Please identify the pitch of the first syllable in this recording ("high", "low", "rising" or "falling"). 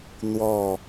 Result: falling